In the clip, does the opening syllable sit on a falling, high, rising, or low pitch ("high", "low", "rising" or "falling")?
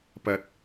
low